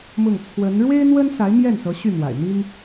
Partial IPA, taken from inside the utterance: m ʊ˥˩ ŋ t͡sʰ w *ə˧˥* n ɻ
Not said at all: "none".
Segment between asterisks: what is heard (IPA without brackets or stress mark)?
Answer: ə˧˥